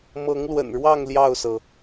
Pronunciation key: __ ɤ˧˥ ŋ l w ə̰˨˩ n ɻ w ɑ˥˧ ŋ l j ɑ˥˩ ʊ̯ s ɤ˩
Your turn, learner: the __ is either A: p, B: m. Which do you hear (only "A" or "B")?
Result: B